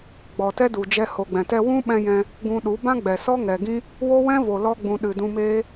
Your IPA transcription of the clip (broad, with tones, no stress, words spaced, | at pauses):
ɡ͡bɔ˨tɛ˦du˨d͡ʒɛ˧ ho˨ɡ͡bɛ̃˨tɛ˧ wũ˦ɓɛ̃˧jɛ̃˧ | ɡũ˧ɗu˨˦ bã˦ɡ͡bɛ˨sɔ˦ ŋɛ˨ɡĩ˦ | wo˦wɛ̃˦vo˨ lɔ˧ɡ͡bũ˨ ɗɨ˨ dũ˧meː˦